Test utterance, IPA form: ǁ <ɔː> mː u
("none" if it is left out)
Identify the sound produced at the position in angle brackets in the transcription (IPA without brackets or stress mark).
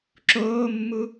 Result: oː